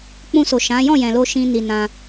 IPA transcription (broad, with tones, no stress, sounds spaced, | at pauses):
k͡p ũ˧ s o˨ ʃ ã˨˦ j ɔ̃˦˨ j ɛ̃˨ l o˧ ʃ ĩ˦ n i˧ n ã˧